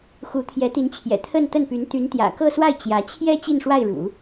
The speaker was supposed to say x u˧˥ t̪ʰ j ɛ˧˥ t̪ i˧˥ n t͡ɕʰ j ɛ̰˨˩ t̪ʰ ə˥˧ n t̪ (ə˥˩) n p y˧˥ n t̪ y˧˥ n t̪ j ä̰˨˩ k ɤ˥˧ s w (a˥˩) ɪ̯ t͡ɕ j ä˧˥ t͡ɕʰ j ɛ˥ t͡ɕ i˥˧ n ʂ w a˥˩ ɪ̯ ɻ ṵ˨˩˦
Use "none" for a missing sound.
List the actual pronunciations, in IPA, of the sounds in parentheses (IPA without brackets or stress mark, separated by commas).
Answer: ə˥˩, a˥˩